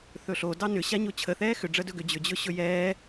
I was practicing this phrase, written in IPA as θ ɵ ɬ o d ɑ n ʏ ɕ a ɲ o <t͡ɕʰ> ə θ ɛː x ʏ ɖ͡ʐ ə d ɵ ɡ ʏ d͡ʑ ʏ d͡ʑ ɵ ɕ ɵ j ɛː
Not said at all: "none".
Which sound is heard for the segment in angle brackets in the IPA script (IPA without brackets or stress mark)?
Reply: t͡ɕʰ